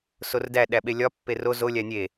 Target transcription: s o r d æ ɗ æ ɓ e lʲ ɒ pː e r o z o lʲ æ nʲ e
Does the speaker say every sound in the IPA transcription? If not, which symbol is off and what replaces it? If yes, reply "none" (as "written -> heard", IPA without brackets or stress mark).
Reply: none